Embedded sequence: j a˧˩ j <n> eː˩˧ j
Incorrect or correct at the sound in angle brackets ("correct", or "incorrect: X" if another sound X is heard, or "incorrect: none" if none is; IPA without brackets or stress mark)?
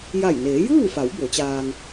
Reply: correct